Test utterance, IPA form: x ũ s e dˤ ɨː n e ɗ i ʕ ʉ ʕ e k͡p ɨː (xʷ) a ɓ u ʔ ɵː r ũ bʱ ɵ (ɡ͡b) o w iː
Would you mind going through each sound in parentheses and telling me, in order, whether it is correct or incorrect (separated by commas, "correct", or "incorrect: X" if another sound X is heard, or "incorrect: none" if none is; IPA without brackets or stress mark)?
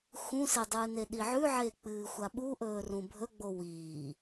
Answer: correct, correct